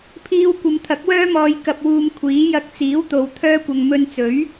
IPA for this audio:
pʰ iː˧ w kʷ ɐ˨˧ m t̪ʰ ɐ˨˥ k̚ w œː˥ m ɔː˧ j k ɐ˧ p̚ w uː˧ m kʷʰ iː˨˥ j ɐ˧ k̚ t͡s iː˨˥ w t̪ o˨˧ w t̪ʰ œː˥ kʷ ɐ˧ ŋ m ɵ˧ n t͡s ɵ˨˥ ɥ

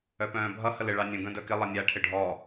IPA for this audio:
œ p œ̃ː bʱ ʌ h ə l ɪ ɭ ɑ nʲ ũ ɡ œ̃ d œ k ɪ lˠ ʌ nʲ a ʈʰ ɪ ɖʱ ɔ

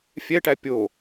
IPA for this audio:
fʲ ɛ ʈ æ pʲ o

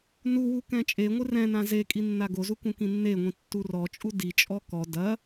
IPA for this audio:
n u w u k ɛ̃ t͡ʃʼ e ŋʷ ɨ r ɛ̃ n ã z e kʼ i nː a ɡ o z u k ũ k ĩ nː e ŋʷ ĩ tː u r ɔ t͡ʃʼ u d i t͡ʃʼ ɔ k ɔ d ɐ

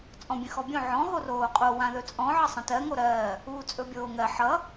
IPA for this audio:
t͡sʼ ɔ̃ bʲ ə̃ x ɔ bʲ õ ʕ ɔ̃ ɦ o r oː qʼ o w ã ð ɵ t͡sʼ ɔ̃ ʕ ə sˤ ə̃ t ɜ ŋ o ɾ ɜː | uː t͡sʼ ɵ bʲ oː ŋ ɜ ħ ʌ

